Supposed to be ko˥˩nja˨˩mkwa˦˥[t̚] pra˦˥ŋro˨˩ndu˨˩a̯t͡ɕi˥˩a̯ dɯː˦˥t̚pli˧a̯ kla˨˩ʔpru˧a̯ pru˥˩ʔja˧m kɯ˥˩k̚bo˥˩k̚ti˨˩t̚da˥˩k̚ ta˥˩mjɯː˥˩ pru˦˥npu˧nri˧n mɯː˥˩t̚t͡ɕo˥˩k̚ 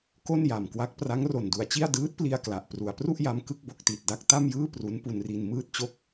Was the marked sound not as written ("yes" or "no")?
yes